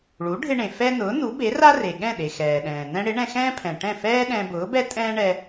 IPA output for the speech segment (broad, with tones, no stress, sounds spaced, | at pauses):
ɭ u˩˥ ɖʱ ɪ˧ ɳ ẽ˩ f ɛ˥ n ʊː˩˥ n u˩˥ b e˩˥ r a˥ r e˩ ɠ ɛ̃˥˩ ɗ e˩ x ɛː˩ ɗ ɛ̃ː˩ n ɛ̃˧ ɽ ɪ˩˥ ɳ ɛ̃˧ x ɛ̃ː˥ pʰ ɛ̃˩ ʈ ɛ̃˥˩ f ɛː˥ ɗ ɛ̃˧ b ʊː˩˥ b ɛ˥ tʼ ɛ̃ː˥ ɳ ɛ˧